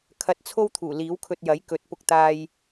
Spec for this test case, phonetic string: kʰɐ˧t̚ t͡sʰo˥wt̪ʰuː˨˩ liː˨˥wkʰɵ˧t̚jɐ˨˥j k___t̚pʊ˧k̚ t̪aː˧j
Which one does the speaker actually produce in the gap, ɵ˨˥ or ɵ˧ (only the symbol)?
ɵ˨˥